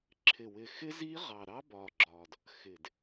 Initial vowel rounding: unrounded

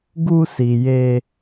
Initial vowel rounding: rounded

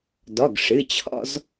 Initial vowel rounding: rounded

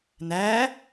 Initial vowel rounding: unrounded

